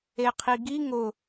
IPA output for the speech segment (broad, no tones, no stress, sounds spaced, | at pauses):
e qʰ i ɡ i ŋ ʊ